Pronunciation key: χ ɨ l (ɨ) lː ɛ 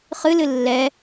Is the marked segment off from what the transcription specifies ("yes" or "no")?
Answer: no